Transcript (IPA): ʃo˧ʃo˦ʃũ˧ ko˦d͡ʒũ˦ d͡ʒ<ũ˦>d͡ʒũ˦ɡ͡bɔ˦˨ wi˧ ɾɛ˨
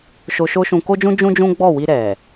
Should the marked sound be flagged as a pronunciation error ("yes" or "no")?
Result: no